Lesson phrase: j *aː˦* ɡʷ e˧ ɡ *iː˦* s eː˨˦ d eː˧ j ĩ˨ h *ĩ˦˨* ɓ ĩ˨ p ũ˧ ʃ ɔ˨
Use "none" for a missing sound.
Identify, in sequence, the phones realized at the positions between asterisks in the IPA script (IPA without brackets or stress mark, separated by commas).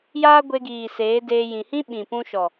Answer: aː˦, iː˨, ĩ˦